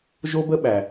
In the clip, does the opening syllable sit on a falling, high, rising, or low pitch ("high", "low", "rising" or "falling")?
high